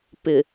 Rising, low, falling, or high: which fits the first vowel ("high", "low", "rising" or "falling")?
low